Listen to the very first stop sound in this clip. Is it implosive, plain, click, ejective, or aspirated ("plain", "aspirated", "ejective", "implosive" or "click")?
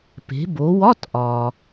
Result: plain